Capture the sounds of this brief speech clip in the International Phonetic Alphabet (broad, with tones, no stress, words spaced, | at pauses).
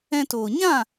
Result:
ɛ̃˧toː˨ ɲã˦˨